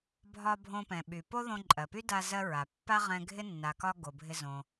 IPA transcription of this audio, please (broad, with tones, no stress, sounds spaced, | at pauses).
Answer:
bʱ ɒ˧ bʱ õ˧ p ɛ̃˩ ɓ y˩ p o˥ ð õ˧ ǃʼ ɜ˩ p y˥ d a˧ z ɜ˧ ɹ a˩ pː a˥ ʁ ɛ̃˧ ɡʱ ɪ˥ nː a˩ k ɒ˧ ɡ o˩ bʱ ɪ˧ z õ˩